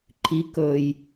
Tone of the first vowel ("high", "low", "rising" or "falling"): low